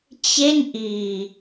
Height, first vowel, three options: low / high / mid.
mid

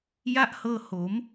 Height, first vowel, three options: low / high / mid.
low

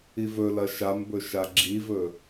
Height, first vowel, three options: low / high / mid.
high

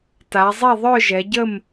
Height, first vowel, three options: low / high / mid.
low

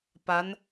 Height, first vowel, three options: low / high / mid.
low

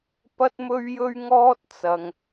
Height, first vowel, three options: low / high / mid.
low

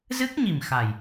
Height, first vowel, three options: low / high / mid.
high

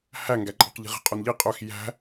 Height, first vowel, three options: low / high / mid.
low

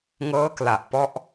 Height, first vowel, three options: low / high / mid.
mid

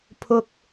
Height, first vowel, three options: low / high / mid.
high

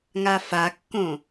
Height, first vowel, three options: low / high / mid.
low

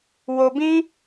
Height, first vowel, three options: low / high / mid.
mid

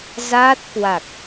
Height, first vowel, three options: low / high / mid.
low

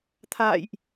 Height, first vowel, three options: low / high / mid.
low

